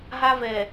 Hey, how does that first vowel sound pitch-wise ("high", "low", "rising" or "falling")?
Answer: high